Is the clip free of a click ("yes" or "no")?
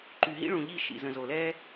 no